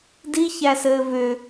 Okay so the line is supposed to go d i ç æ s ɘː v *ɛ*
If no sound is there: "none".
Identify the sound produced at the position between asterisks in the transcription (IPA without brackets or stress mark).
ʏ